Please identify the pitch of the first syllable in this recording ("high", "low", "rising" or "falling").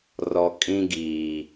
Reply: low